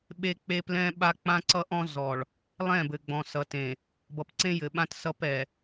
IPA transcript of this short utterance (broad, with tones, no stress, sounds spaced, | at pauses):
ɓ e˦ k͡p e˦ p l ɛ̃˦ ɓ a˦ k͡p ã˦ ǀ ʌ˦ ʔ ɔ̃˦ z ɔ˨ ɭ | lˠ ɛ̃˦˨ b ɘ˨ ɡ͡b ɔ̃˨ s ʌ˨ t ẽ˨ | b ʌ˨ p ǀ ẽ˦ j ɘ˨ ɓ ã˦ t s ʌ˦ p ɛ˨